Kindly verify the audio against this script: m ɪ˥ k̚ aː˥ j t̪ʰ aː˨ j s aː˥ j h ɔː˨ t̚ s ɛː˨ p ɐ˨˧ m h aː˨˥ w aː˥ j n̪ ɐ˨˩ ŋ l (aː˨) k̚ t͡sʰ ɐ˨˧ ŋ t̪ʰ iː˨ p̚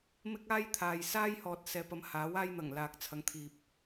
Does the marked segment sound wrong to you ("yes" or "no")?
no